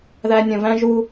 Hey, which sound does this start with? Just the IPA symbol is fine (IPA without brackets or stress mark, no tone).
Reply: ð